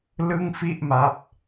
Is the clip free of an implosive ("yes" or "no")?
yes